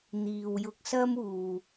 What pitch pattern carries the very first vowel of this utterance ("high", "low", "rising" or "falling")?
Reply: low